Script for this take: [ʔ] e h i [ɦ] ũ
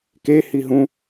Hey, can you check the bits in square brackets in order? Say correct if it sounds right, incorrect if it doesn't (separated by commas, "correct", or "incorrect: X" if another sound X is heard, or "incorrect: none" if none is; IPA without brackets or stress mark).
incorrect: k, correct